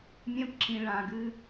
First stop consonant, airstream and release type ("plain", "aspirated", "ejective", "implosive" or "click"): plain